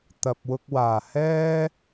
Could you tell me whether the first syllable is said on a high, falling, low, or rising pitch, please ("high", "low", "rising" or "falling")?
low